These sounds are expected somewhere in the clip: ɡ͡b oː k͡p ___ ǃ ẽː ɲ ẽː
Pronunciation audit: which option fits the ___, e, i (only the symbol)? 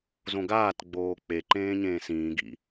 e